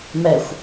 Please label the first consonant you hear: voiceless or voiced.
voiced